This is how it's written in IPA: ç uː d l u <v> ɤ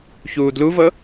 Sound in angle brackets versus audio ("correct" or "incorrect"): correct